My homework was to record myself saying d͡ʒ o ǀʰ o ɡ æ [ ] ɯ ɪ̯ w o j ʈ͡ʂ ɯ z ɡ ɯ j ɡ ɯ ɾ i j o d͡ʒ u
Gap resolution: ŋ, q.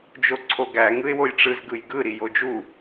ŋ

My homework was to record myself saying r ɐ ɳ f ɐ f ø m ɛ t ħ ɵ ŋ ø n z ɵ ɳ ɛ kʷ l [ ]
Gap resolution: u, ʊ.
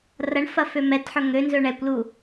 u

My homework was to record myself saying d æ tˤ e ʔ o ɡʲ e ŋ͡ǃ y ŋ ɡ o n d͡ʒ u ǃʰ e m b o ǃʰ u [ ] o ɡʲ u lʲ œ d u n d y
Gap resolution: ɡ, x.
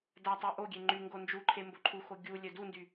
x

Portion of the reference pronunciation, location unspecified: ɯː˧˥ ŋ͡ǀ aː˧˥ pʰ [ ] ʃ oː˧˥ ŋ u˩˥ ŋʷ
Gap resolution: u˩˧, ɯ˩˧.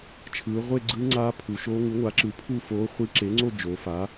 u˩˧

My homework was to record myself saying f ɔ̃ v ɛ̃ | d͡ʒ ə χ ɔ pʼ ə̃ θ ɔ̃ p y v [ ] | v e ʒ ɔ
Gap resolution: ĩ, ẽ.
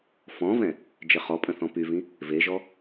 ĩ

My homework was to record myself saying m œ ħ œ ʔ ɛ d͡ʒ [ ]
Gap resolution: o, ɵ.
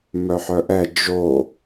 o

